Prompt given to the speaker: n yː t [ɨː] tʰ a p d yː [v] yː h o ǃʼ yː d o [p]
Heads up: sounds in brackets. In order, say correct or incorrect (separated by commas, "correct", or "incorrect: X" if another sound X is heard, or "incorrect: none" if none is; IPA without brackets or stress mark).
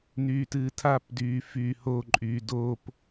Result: correct, incorrect: f, correct